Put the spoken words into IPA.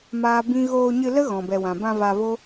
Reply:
m aː˦ b ĩ˦ ɣ oː˧ ɲ ɨ˧ l ə˦ ɣ ɔ̃˨ b ɛ˨ w ã˨ b ã˧ v a˧ v o˦

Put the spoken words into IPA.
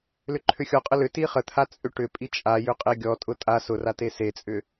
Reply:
l ʏ ǃʰ ʏ xʲ ɔ qʼ ə l ʏ t i χ ə t̪ʰ a t͡sʼ ʏ ʈ ʏ pʼ i t͡ʃʼ a j ʏ qʼ e ɡʲ ɔ tʼ ʊ tʼ a s ʊ r a t e s e t͡sʼ ʏ

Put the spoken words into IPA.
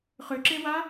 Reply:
χ ʏ ǁ e w a

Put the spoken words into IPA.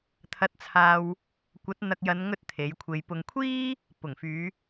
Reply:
t̪ʰ ɐ˧ t̚ t͡sʰ aː˧ w | kʷ ɐ˨˥ t̚ n̪ ɐ˧ k̚ j ɐ˨˧ n ŋ ɵ˥ t̚ t̪ʰ e˨˥ j kʷʰ e˧ j p ʊ˨ ŋ kʷʰ iː˥ | p ʊ˨˩ ŋ f yː˨˧

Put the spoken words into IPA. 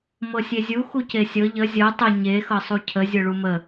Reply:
m ɤ sʲ e zʲ u x u c e sʲ ɤ ʎ ə zʲ ɤ tˤ ə ɲ e x ɤ sˤ u cʰ ə zʲ ɤ ɭ u m ə

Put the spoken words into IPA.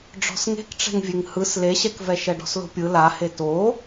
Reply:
ɖ͡ʐ ɔ̤ s ŋ e̤ k ʈ͡ʂ ɛ̤ ŋ vʲ e ŋ h ɯ s l e ɕ ɛ k v ɛ ʃ ɛ ɖ ɔ̤ s l o̤ pʲ ɯ l a h e t o

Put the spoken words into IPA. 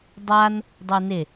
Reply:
dˤ a n | dˤ u n ɪ

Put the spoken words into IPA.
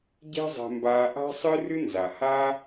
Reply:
ɟ ɛ̤˥ zˤ ɛ̤˧ m b aː˧ ʔ a̤˥ sˤ ɨ˥ r ɨ˥ n z a˩ h aː˥

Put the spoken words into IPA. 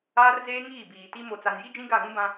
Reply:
aː˦ r z eː˦ ŋ iː˦˨ b iː˨ t i˦ m o˨ t͡s a˨ n j i˦ d͡ʒ ĩ˦ ɡ a˦˨ ɣ ũ˦ b ã˦

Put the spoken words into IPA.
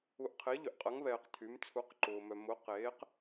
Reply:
u˨ ʔ qʰ e˨˦ ʎ ʏ˨ ʔ qʼ ɐ˨˦ ŋ β ɛː˨ q tʰ y˨˦ m t͡sʰ u˨˦ q ǃ ʊː˨ m œ˨ m ʊ˨˦ q eː˨˦ q

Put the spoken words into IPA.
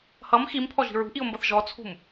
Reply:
h ʌ m x i m pʰ ɔ ʒ i̤ ɹ ṳ ʔ i ʊ̯ m b ʌ θ ʒ ɔ t͡sʰ ṳ m

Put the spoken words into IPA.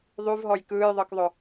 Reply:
ðˤ y v ɦ ɔ j k ɯː j ðˤ ɯ k ðˤ ʏ

